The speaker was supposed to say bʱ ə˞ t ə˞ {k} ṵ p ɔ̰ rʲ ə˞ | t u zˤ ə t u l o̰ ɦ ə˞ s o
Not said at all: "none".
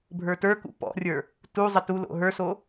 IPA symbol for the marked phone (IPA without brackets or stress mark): k